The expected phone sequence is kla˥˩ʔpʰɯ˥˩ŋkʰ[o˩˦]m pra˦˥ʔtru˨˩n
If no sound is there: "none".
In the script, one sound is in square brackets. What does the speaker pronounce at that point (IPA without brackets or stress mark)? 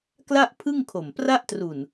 o˨˩